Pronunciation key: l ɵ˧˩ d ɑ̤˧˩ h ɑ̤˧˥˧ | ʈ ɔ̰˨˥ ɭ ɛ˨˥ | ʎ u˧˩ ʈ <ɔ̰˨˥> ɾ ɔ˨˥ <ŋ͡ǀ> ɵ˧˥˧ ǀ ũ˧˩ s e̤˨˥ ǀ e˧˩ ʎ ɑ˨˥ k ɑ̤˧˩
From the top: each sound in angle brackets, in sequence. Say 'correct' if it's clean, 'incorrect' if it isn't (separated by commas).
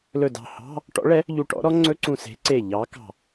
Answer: correct, correct